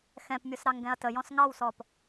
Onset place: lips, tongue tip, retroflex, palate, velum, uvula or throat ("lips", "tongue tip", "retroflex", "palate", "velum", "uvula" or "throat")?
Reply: velum